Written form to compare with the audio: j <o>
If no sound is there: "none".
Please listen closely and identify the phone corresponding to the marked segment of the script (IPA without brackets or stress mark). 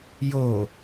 o